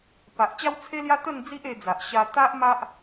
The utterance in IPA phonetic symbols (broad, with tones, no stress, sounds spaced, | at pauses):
p a˨ ʔ t͡ɕ a˦ w t͡sʰ e˦ l j a˦ t̪ ə˥˧ n d͡z i˦ ʔ e˧ d͡z a˨ ʔ ɕ a˧ t̪ a˦ ʔ m a˦ ʔ